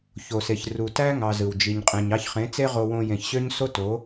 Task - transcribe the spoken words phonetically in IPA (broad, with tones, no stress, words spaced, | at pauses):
ço˨se˨ç ru˨tæ˦ ŋɑ˧zɯ˨wd͡ʒi˧ɲqʼẽ˧ɲ ɑ˧çχẽ˨˦t͡se˦ ʁo˧wõ˧ jẽ˨çɕø˦ɲ so˦to˨˦